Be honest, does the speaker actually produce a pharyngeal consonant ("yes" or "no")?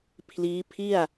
no